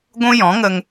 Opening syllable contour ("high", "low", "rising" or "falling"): high